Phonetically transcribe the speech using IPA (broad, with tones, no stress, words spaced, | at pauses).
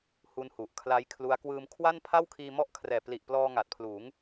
hu˦˥nhu˨˩ʔkʰla˦˥jkʰlu˦˥a̯ kwɯː˧mkʰwa˥˩npʰa˥˩w kʰiː˧mɔ˦˥ʔkʰrɛː˨˩ pli˨˩ʔplɔː˧ ŋa˨˩t̚pʰluː˩˦ŋ